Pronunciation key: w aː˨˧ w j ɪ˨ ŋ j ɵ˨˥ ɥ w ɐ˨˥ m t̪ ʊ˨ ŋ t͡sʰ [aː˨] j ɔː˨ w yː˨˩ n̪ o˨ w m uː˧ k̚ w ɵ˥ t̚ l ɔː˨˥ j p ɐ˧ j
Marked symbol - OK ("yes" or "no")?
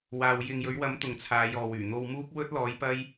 no